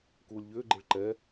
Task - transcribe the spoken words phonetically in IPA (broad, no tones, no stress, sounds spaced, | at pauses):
k uː lʲ ʎ ʏː ɡ͡ǃ e ɭ ǃ ɛ